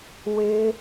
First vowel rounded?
no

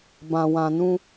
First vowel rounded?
no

